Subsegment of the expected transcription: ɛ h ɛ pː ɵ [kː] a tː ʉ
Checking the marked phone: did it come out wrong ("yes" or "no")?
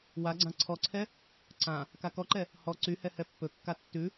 no